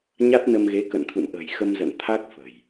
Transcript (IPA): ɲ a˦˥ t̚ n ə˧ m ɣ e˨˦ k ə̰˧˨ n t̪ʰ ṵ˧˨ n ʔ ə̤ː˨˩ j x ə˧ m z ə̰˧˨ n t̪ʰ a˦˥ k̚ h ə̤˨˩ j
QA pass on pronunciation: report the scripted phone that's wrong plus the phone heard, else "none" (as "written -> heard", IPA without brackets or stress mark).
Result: h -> f